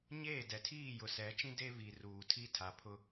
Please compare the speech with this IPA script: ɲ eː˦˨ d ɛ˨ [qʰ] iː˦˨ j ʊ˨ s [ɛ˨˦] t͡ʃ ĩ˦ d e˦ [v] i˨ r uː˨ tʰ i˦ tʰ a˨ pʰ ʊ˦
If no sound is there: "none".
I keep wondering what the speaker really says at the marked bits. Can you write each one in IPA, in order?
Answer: tʰ, ɛ˨˦, v

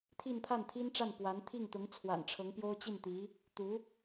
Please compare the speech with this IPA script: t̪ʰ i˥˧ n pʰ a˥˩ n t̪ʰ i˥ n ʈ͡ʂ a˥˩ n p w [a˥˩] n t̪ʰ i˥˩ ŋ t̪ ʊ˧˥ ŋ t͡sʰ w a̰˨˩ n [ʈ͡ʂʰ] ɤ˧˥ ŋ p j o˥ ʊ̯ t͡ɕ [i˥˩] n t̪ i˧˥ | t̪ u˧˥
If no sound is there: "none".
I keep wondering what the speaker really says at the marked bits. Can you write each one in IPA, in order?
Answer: a˧˥, ʈ͡ʂʰ, i˥˩

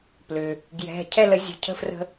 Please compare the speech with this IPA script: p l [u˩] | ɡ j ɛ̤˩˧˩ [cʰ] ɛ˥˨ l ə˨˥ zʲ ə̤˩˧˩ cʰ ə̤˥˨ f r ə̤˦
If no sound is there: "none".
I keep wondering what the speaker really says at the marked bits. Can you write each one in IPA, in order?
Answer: ʏ˩, cʰ

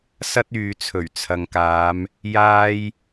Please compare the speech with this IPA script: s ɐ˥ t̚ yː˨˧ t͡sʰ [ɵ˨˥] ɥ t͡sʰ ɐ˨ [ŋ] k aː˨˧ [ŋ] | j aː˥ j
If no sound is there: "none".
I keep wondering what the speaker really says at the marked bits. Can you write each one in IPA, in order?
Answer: ɵ˨˩, ŋ, m

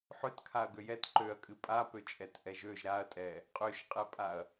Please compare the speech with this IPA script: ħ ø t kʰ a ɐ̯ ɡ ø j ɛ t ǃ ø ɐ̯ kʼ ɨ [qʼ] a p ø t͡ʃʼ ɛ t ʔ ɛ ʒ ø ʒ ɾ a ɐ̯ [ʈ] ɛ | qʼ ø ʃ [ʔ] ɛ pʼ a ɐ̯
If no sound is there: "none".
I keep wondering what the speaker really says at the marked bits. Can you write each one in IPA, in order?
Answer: pʼ, tʼ, qʼ

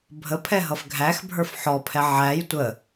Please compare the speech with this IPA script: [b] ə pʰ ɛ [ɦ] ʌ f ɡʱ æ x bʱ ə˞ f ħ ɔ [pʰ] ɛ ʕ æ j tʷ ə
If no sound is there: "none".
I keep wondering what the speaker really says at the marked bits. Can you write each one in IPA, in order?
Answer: bʱ, ɦ, pʰ

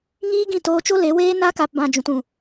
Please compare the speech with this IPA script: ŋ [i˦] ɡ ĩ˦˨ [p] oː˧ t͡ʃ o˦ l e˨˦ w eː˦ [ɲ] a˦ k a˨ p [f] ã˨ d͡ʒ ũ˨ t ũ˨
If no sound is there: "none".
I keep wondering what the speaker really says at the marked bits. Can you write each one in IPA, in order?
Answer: iː˦, t, n, b

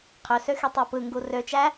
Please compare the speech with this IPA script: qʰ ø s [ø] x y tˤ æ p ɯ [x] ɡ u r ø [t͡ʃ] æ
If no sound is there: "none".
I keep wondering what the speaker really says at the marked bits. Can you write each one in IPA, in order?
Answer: ø, ŋ, t͡ʃ

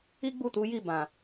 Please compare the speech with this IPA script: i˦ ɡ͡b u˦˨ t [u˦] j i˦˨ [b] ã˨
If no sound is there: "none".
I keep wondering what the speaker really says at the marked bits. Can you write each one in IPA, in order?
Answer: u˨˦, b

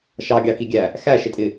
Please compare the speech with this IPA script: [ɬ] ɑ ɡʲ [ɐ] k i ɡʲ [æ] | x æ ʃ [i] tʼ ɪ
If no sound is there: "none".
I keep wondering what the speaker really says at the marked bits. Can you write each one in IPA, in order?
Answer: ʃ, ɑ, æ, ɪ

